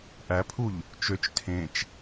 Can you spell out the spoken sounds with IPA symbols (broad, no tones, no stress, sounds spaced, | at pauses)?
ʔ æ pʰ u ʎ | t͡ʃ ø t͡ʃ tʰ ẽ t͡ʃ